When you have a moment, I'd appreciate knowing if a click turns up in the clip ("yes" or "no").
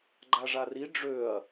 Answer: yes